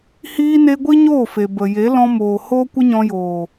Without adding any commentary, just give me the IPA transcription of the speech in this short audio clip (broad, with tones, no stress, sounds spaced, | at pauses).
h iː˧ n e˧ ɡʷ i˦ ɲ oː˦˨ f e˨ b ə˨ j e˨˦ l ɔ̃˧ m oː˨ h oː˦ kʷ ə˦ ɲ ɔ̃˧ j oː˨